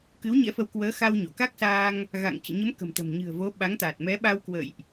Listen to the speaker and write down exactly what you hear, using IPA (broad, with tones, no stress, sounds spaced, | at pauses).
k ɨ˨˦ w ɲ ɛ̰˧˥ f ə˨˦ w k w əː˨˦ x a˧ w ɲ o˧˩ k a˦˥ k̚ s aː˧ ŋ | ɣ a̰˧˨ ŋ t͡ɕ ɨ̰˧˨ ɲ ə˨˦ m k ə̤˨˩ m t̪ ə̤˨˩ m ɲ ɨ̤˨˩ ə̯ v o˨˦ ɓ a˨˦ ŋ t̪ a˨˩ t̚ m ɛ˨˦ ɓ a˧ w k w ə̰ː˧˨ j ʔ